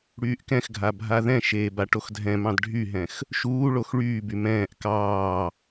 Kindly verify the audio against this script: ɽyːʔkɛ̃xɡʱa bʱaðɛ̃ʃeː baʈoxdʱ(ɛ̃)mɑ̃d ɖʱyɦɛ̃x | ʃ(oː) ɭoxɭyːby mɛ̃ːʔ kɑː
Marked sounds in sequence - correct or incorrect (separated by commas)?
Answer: correct, incorrect